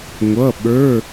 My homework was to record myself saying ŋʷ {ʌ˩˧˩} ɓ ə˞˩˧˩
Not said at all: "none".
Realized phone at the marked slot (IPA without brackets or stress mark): ʌ˩˧˩